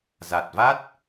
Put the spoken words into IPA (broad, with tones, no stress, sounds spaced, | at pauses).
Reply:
z a˨˩ t̚ v a˦˥ t̚